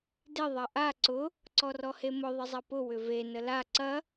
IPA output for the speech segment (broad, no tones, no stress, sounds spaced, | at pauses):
d ɪ ðˤ ɐ ʔ a ǀ ʊ | ǀ ɔ r ɔ h e m ʊ ðˤ ə zˤ ɐ p ʊ w ʏ v e n ə l a ǀ ɐ